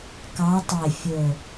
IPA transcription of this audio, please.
k ɑ˨˦ tˤ e˨˩ fʲ ɵ˨˩

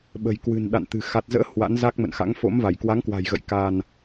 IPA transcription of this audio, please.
ɓ ə̤˨˩ j k w ɨ̤˨˩ n ɗ a̰˧˨ n t̪ ɨ̤˨˩ x a˨˩ t̚ z ə̰ː˧˥ h w a̰˧˥ n z a˦˥ k̚ m ə̰˧˨ n x a̰˧˥ ŋ f o̰˧˥ m v a˧˩ j k w a˨˦ ŋ k w a̤˨˩ j ɣ ə̰˧˨ j k a˧ n

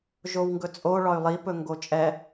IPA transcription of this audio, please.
ʒ o w ŋ ɡ ɵ t͡sʼ o ɭ ɒ y̯ lˠ i p ɵ ŋ ɡ o t͡ʃʼ ɛ

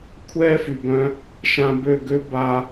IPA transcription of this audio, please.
kʷʰ ɛː˦ f y˨ b œ̃˧ | ʃ ã˧ b ø˦˨ ɡ ø˦ b a˦

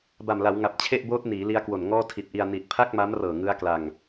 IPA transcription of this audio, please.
b a˨˩ m l a˩˦ w ŋ a˨˩ p̚ t͡ɕʰ e˥˩ ʔ b oː˦˥ t̚ n iː˩˦ l i˦˥ a̯ k w o˨˩ n ŋ ɔː˥˩ tʰ i˨˩ t̚ ʔ i˧ a̯ n i˨˩ t̚ pʰ a˥˩ k̚ m a˦˥ m r ɤː˨˩ ŋ ɯ˦˥ a̯ k l a˧ ŋ

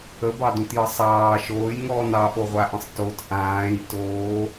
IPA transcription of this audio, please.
ə b ɑ d ũ t j ə sˤ ɑː ʃ oː j ŋ ɔː n ɑ ʔ o ʁʷ a ʔ ə̃ sˤ t o t ʔ ãː j t oː

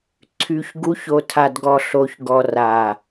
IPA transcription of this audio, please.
ǀʰ y˨ ç ɡ u˨˦ ç o˨ tʰ a˨ d ɡ ɔ˨ ɬ o˨ ç ɡ ɔ˨ r a˨

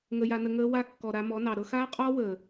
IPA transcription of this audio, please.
ŋ ə˧ j a˧ n ə˧ ŋ əː˦ w a˦ kː ɔ˨ ɾ a˧ m ɔ˨˦ n ɑ˨ ɾ ɤ˧ x aː˦ qʼ ɔː˦ w əː˨

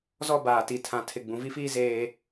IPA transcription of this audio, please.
z ɔ˦ b aː˨ t i˨ tʰ ã˨ tʰ ɪ˨ ɡ͡b ũ˨ v i˦ f iː˦ z eː˦

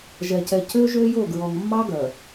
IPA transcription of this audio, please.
ʒ ɛ˨ c ɛ˨ c ø˦ ʒ ø˦ j o˦˨ ɡ ɹ ɔ˨ ŋ mː ɑ˦ ɡ œ˨

